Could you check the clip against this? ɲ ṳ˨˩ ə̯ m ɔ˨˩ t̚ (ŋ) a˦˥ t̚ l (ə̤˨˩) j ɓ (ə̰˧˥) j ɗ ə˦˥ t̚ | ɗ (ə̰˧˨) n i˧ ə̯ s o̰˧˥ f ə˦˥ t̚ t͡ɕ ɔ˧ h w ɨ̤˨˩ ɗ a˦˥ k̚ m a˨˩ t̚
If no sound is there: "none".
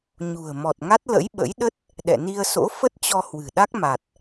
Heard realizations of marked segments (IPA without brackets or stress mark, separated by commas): ŋ, ə̰˧˥, ə̰˧˥, ɛ̰˧˨